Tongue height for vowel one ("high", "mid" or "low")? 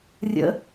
mid